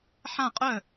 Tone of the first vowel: falling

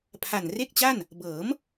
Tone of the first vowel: low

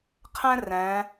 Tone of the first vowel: high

